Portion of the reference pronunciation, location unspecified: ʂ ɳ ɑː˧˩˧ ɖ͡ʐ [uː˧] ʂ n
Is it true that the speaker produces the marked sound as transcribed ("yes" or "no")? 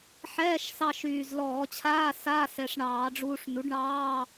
yes